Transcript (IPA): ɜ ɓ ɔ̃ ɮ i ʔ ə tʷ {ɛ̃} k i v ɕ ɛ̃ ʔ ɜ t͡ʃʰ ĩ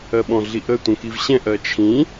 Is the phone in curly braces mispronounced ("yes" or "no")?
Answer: yes